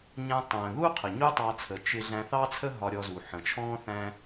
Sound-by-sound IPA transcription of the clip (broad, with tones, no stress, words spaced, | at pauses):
ɲæ̃˧ tˤə̃ː˨ðu˦ qʰə˨ɲu˦tˤɑ˧t͡sʰə˨ t͡ʃɪ˧ ɮæ̃˧θɑ˦t͡sʰə˦ ɦɒ˧ɾʲɔ˧zu˨ ħə̃˨ t͡ʃʰɔ̃ː˦θæ̃˦